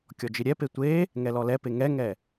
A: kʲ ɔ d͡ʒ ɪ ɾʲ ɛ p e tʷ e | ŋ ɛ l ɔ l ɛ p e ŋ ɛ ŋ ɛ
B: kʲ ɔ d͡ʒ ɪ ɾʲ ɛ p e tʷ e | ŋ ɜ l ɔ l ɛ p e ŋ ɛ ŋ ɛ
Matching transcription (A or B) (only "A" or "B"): A